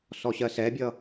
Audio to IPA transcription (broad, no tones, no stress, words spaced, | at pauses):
sɔɕɜsɛbʲʌ